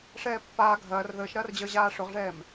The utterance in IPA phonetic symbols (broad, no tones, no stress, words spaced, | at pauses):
ʂɛːpːaː ɡʱɐːr ðəːʃɾɐːrd͡ʑəː ʑaːʂʊʁʐɛːm